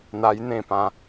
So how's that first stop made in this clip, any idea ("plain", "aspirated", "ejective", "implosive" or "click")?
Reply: plain